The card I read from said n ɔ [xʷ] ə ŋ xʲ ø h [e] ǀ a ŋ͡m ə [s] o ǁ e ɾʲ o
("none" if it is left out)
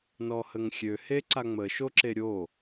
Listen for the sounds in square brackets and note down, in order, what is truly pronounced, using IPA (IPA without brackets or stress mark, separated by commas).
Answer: h, e, ʃ